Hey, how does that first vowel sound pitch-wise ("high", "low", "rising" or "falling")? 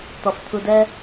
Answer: low